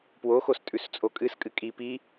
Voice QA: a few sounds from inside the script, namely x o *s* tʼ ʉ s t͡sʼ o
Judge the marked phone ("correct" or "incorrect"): correct